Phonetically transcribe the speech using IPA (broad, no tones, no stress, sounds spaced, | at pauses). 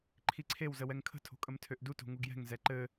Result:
ǃʰ i ǀʰ e w z ə w ɛ ŋ kʰ ə̤ tʰ o̤ kʼ ə m tʰ ø ʔ d u t o̤ ŋ u ɡ j ɛ̤ ŋ z ɛ ǃ ɘ